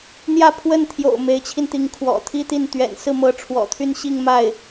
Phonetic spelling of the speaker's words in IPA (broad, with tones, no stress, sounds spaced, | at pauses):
n̪ j ä˥˧ pʰ w ə˥˩ n t̪ʰ j o̰˨˩ ʊ̯ m e˧˥ ɪ̯ t͡ɕʰ i˧ n t̪ i˧˥ ŋ kʰ w ɔ̰˨˩ t̪ʰ i˥ t̪ i˥˩ n t̪ ɥ ɛ̰˨˩ n s ɹ̩˥˩ m ɤ˧˥ ʈ͡ʂʰ w ɔ̰˨˩ t̪ʰ y˥˧ n ɕ i˥˧ ŋ m a˥˩ ɪ̯